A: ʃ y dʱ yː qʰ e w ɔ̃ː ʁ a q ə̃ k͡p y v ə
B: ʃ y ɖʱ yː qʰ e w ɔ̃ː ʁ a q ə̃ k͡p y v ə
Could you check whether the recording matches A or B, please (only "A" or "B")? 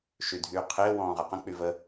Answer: A